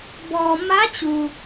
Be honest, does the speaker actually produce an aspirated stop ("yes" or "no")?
no